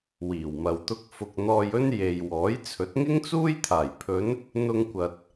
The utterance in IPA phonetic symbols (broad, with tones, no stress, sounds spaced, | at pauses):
w iː˨˩ w m ɐ˨ w t̪ ʊ˥ k̚ f ʊ˧ k̚ n̪ ɔː˧ j ɵ˥ n j e˨ j w ɔː˨˥ j t͡sʰ ɵ˨˥ t̚ ŋ ɪ˥ ŋ t͡s uː˥ j t̪ʰ aː˨˩ j pʰ ɵ˨˧ n | n̪ ʊ˧ ŋ kʷ ɐ˨ t̚